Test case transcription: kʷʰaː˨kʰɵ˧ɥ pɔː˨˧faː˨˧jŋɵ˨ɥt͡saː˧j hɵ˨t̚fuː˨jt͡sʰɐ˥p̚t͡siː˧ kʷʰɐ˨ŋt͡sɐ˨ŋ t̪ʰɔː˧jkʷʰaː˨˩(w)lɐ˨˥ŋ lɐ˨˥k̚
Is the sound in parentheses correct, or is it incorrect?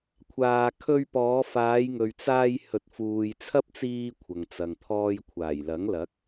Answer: incorrect: j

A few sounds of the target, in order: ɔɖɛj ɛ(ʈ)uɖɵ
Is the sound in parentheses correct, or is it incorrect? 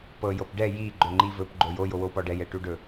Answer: correct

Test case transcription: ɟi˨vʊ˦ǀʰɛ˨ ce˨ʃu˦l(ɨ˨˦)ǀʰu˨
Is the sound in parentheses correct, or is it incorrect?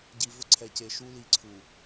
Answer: incorrect: i˨˦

